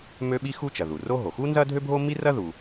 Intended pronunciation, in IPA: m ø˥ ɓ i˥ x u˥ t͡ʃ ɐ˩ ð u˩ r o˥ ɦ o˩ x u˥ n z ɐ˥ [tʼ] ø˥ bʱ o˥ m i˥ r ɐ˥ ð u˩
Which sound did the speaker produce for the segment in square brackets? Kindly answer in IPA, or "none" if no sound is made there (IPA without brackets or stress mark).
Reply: dʱ